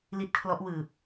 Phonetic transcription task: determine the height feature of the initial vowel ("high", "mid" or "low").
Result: high